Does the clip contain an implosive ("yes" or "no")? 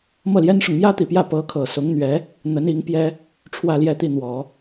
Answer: no